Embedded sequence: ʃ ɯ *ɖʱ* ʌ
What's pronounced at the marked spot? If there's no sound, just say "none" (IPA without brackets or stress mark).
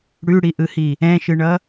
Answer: ɳ